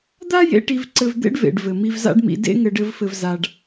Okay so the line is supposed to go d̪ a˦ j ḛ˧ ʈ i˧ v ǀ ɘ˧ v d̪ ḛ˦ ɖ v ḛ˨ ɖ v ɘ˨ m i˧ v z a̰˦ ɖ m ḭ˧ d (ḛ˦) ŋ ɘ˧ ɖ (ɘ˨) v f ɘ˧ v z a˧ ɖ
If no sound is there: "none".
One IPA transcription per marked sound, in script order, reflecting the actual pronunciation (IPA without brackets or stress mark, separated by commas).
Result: ḛ˦, ɘ˧